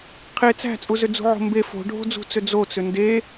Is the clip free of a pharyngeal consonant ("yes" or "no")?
no